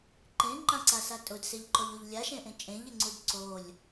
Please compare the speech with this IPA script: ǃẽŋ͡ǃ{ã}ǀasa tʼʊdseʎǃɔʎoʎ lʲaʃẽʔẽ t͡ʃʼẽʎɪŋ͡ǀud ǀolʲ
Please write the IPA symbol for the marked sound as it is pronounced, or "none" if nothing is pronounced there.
ã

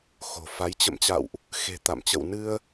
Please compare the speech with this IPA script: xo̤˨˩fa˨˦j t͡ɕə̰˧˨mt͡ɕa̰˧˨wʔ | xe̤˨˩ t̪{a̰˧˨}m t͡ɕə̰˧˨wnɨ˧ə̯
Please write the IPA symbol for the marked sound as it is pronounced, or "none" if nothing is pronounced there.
a̰˧˨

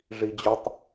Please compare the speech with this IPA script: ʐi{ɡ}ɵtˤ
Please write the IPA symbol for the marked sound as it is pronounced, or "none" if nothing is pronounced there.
d͡ʑ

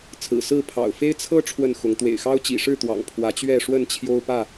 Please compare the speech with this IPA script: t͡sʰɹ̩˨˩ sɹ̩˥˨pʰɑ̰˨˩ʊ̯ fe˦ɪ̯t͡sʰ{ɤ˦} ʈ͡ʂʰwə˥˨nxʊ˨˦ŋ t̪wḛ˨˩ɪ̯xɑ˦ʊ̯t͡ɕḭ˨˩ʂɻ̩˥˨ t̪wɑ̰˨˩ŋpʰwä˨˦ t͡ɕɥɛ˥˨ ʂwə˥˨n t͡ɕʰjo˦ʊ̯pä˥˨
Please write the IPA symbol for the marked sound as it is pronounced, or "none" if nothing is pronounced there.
ɤ˦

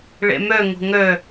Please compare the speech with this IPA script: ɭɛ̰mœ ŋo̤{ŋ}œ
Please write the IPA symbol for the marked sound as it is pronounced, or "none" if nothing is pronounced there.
ŋ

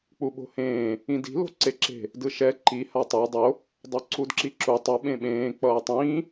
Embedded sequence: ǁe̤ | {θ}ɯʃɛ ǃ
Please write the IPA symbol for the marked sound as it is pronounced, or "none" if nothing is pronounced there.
d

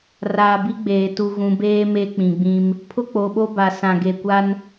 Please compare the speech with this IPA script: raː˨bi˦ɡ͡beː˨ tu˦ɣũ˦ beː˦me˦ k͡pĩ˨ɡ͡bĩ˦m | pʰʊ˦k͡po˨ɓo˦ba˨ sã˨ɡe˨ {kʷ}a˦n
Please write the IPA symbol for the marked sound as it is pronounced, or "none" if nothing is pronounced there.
kʷ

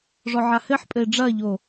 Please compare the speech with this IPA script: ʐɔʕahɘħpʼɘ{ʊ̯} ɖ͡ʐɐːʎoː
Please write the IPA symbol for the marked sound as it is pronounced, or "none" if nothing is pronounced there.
ɪ̯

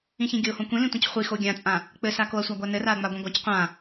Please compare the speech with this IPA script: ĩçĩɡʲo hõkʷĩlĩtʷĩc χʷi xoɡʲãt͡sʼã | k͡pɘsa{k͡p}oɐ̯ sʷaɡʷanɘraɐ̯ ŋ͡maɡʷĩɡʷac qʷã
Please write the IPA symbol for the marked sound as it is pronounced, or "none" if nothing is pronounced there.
k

